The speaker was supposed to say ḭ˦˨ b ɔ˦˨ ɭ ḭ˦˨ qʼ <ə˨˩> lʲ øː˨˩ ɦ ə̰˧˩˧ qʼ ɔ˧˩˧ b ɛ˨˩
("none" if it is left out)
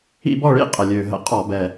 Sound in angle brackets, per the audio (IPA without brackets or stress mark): ə˨˩